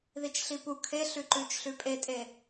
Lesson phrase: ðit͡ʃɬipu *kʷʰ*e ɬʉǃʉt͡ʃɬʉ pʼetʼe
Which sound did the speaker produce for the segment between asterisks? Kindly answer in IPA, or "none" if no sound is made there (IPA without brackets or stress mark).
kʰ